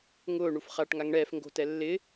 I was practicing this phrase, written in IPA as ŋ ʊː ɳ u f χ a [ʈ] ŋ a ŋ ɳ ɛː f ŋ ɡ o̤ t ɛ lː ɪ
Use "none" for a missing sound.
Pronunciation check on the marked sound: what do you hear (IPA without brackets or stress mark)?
ʈ